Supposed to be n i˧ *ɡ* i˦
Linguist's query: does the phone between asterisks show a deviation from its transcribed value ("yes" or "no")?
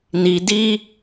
yes